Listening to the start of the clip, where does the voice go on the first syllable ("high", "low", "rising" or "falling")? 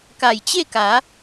low